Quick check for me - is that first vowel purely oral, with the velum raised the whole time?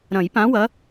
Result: no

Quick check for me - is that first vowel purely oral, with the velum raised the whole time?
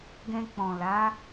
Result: no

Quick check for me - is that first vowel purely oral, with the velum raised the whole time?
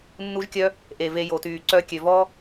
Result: yes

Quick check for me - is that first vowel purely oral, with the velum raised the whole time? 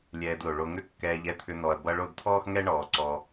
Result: yes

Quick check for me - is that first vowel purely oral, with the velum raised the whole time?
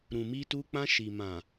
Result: no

